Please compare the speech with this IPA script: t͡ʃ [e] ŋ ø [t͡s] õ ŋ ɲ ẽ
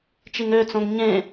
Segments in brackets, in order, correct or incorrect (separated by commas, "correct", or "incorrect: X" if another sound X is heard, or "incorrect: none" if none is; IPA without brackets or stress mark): incorrect: i, correct